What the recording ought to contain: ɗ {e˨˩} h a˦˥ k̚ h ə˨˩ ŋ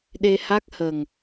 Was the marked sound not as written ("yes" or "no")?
yes